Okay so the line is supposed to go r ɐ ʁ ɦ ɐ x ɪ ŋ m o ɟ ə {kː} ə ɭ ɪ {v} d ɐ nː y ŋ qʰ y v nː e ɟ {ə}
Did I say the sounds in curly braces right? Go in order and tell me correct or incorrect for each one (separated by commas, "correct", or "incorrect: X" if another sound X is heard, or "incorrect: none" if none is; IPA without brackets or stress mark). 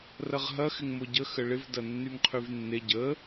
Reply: incorrect: x, correct, correct